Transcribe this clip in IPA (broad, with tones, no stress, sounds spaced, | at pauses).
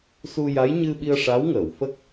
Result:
s u˧ j a˧˥ j ɲ ɨ˧ ɓ i˧ ə̯ ʂ a˧˥ w ŋ ə˨˩˨ w f ə˦˥ k̚